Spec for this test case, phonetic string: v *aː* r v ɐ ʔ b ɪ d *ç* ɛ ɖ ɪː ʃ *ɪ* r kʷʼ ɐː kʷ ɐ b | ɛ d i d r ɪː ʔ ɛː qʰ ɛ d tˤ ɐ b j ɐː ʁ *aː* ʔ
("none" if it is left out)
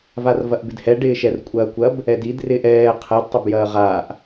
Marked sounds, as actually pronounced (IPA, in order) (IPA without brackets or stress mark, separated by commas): a, h, ɛ, aː